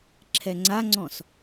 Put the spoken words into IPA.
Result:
ǁʰɛŋ͡ǀaŋ͡ǀɔ̃s

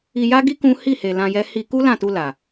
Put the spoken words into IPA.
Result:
i˧ja˦ɡi˦ kũ˦ hi˦˨he˨ lã˧jɛ˦ hi˧ ku˦ lã˦˨tu˧ la˨

